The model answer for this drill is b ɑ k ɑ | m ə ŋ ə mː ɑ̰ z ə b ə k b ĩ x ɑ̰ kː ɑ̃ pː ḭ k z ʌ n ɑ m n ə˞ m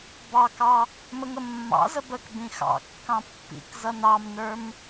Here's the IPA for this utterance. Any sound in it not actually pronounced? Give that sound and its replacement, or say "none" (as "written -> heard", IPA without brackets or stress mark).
none